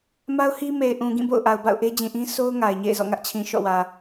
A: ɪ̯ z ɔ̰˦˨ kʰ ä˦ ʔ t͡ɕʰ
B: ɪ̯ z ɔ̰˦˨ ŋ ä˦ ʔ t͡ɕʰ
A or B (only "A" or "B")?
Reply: B